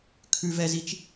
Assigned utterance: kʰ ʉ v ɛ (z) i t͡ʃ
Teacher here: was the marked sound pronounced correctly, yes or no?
yes